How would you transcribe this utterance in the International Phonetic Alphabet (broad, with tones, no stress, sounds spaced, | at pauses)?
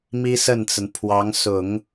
m i˥ s ə˥˩ n t͡s ə˩ n pʰ w ɑ˧˥ ŋ s ʊ˨˩˦ ŋ